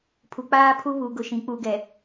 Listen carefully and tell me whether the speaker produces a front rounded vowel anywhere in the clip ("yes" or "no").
no